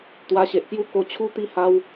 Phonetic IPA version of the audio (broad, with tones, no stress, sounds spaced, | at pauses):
t̪ w a˧ ɕ e˨ ʔ k j u˦ k o˧ t͡ɕʰ u˦ t̪ i˧ h a˧ w